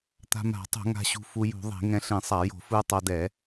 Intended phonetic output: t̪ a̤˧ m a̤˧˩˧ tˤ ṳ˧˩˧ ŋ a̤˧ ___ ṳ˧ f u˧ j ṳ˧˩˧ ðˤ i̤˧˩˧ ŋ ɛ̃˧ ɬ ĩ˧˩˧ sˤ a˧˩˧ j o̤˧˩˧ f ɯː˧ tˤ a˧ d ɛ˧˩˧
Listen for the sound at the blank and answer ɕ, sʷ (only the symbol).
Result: ɕ